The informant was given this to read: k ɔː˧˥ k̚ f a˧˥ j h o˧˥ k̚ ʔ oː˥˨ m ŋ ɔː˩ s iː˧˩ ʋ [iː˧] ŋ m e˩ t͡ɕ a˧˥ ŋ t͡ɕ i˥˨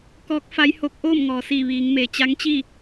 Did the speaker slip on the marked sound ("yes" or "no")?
yes